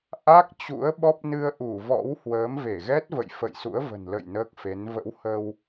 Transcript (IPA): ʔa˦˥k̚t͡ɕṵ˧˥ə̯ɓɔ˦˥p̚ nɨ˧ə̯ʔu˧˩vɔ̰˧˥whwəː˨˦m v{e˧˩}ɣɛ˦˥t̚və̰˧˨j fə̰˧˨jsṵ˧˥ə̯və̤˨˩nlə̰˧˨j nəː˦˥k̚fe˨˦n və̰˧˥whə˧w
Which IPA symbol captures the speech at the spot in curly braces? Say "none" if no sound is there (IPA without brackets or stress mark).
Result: e˧˩